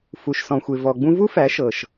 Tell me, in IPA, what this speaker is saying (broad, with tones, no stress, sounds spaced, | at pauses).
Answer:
f u˧ ʃ s ɔ̃˧ xʷ e˧ v ɔ˧ ɡ͡b ũ˦ v u˦ f æ˨˦ ʃ ɤ˧ ʃ